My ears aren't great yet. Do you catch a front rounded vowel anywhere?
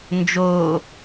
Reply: no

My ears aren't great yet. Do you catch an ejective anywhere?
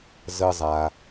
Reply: no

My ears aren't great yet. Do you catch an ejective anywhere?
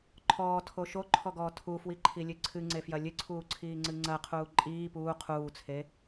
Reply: yes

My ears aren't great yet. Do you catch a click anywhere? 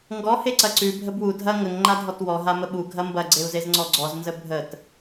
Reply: yes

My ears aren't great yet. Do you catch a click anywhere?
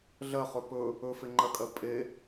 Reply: yes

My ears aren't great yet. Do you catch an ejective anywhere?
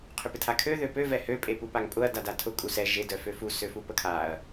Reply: yes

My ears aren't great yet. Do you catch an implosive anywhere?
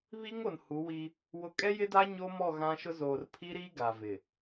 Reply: no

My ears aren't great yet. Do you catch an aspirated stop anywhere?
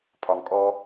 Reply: yes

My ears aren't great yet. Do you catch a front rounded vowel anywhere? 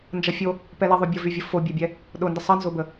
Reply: yes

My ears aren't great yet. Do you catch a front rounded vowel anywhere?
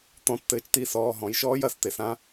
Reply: no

